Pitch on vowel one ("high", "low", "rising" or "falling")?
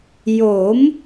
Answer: rising